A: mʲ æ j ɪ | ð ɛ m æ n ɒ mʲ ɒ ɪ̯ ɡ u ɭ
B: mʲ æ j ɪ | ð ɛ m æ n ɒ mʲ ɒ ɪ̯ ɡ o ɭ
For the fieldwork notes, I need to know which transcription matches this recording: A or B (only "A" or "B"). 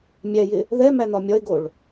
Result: B